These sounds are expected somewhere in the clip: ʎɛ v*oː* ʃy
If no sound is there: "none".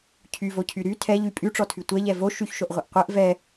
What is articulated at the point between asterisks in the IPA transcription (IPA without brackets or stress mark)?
o